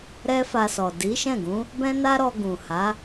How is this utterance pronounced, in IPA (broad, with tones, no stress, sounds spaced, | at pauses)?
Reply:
ɾ ɛ˦ f a˧ s ɔ˨ d i˨˦ ʃ ɛ̃˦˨ ɡ ũ˨˦ | b ɛ̃˦ n a˦ ɾ ɔ˧ ɡ ũ˨ h a˨˦